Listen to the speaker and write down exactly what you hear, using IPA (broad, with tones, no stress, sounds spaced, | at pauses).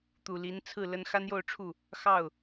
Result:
t̪ u˨˩ l i˧˥ n t͡sʰ ɹ̩˥˩ l ə˥ n x a˥ n j o˥˧ ʊ̯ ʈ͡ʂʰ u˥˩ | x ɑ˥˩ ʊ̯